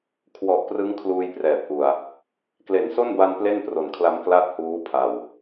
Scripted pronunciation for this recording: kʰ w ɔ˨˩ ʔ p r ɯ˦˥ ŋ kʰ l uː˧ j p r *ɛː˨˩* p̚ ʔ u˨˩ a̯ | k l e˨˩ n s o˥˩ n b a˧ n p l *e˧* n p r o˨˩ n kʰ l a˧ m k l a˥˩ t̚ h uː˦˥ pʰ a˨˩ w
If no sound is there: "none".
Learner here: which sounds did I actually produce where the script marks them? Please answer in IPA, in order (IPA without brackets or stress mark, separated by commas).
ɛː˨˩, e˥˩